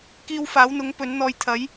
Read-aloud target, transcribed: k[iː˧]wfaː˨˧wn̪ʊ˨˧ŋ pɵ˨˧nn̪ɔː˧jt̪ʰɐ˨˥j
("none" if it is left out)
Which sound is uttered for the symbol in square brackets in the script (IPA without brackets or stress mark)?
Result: iː˧